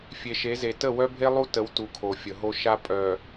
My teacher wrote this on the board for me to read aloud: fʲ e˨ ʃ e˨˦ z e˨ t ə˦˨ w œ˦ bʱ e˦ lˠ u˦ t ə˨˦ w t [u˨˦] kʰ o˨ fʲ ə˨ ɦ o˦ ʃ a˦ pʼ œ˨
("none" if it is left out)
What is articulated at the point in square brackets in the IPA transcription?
u˨˦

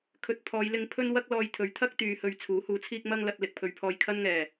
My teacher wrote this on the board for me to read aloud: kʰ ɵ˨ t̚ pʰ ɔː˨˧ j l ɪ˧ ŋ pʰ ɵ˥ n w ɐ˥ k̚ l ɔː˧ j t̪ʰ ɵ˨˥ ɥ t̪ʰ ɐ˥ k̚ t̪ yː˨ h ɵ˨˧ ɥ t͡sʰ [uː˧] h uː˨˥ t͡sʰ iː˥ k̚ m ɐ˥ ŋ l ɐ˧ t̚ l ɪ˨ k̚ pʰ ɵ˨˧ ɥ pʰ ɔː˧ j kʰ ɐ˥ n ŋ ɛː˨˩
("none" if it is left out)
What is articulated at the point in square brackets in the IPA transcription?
uː˨˥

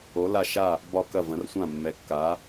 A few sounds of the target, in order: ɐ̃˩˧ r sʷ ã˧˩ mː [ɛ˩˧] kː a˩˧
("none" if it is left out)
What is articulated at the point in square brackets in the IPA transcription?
ɛ˩˧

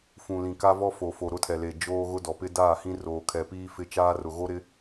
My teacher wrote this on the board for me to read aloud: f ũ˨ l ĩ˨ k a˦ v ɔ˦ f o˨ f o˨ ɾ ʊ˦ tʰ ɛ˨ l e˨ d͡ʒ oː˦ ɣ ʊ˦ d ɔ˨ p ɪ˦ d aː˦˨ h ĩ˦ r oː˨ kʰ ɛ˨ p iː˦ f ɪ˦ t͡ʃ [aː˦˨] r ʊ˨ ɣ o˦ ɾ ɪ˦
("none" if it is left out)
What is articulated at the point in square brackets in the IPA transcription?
aː˦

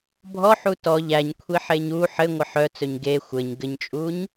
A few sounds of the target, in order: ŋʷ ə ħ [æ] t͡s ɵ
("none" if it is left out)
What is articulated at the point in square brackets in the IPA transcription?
œ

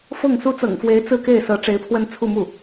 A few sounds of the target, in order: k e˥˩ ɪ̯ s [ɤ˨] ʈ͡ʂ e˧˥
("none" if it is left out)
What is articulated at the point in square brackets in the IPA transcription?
ɤ˧˥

